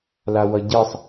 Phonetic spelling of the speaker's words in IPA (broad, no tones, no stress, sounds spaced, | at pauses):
l a w ʌ ɟ e sˤ